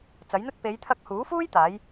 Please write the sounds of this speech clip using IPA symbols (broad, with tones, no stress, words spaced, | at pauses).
t͡sɐ˨˥jn̪ɵ˥t̚ pe˨˧jt̪ʰɐ˧k̚huː˨˥fuː˥j t̪aː˨˥j